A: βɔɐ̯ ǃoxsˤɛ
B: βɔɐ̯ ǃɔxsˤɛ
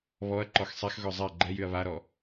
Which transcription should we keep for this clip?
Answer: B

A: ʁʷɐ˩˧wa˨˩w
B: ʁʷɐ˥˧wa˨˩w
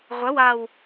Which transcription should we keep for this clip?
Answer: A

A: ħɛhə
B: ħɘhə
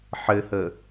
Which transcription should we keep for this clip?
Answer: B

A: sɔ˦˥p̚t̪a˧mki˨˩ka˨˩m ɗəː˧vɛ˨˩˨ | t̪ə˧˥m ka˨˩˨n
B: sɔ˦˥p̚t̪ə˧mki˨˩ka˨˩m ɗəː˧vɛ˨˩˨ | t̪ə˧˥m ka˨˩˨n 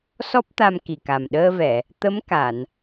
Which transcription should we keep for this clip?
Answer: A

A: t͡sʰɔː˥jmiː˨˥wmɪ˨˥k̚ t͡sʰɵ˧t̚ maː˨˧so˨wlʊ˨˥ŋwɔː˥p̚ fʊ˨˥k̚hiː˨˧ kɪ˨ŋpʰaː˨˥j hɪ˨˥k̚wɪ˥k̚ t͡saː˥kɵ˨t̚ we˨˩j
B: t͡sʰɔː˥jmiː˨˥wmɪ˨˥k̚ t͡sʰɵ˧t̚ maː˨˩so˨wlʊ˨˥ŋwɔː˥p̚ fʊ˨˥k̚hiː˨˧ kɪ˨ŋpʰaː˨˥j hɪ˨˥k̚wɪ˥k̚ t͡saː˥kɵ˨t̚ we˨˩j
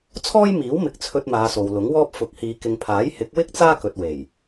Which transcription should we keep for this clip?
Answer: A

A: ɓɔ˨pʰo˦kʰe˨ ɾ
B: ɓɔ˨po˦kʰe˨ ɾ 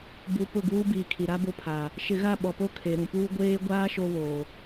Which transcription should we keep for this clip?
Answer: B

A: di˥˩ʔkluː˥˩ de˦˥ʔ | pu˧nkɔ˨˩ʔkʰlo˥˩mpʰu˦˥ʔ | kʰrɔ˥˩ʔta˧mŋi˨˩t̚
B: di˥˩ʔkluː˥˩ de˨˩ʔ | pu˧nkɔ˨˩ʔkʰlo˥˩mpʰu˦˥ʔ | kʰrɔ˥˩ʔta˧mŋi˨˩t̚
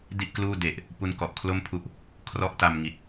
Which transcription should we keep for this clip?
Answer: B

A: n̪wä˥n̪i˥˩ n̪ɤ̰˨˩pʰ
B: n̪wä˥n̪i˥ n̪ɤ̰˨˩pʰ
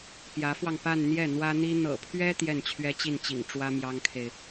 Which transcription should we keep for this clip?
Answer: B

